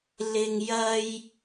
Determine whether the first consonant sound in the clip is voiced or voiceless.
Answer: voiced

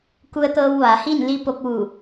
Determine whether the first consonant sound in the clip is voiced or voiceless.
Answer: voiceless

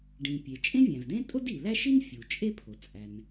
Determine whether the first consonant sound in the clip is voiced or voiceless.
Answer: voiced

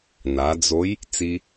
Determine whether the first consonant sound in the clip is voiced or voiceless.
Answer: voiced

